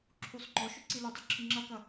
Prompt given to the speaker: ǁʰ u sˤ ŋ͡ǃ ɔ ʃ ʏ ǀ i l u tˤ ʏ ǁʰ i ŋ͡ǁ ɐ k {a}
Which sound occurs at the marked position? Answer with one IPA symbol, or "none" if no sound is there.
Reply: ɐ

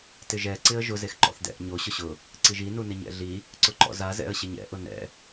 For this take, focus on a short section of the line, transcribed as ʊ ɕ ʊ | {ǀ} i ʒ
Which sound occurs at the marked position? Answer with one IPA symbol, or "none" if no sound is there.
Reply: ǀ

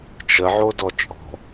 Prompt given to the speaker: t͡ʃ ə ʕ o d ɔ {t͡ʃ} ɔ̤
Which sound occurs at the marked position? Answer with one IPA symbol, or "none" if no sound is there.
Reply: t͡ʃʼ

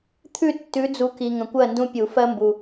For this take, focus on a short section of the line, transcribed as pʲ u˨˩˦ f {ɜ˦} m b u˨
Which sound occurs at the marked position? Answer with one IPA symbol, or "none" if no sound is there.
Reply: ɜ˦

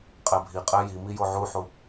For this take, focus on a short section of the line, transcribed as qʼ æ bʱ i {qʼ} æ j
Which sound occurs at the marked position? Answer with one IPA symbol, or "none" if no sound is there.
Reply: qʼ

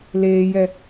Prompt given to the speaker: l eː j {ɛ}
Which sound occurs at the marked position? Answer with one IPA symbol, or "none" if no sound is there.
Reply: ɛ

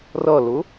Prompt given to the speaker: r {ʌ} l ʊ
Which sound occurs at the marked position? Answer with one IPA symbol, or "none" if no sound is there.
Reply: ʌ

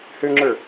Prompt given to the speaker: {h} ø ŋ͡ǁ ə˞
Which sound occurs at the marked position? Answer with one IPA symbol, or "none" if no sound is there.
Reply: h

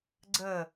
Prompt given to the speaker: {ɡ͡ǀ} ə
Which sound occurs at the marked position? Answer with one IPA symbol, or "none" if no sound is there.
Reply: ɡ͡ǀ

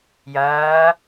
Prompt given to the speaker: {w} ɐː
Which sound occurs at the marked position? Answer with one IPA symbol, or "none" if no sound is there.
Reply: j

